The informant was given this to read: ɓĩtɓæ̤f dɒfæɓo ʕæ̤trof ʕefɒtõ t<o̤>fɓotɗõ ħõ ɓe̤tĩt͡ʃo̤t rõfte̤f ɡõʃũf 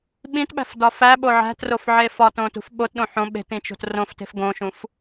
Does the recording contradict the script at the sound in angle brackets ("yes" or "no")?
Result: yes